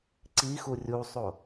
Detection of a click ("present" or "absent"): present